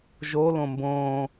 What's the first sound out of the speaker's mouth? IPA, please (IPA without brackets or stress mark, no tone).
ʒ